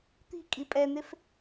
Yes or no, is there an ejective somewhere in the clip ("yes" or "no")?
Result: yes